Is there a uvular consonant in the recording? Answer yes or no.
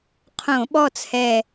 yes